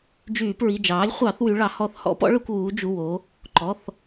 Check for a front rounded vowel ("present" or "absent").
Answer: present